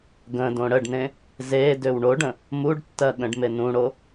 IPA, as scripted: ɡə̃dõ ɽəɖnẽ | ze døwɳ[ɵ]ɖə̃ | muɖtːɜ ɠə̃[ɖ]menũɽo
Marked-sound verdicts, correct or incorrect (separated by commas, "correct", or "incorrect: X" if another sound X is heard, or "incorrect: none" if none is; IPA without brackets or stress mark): incorrect: o, correct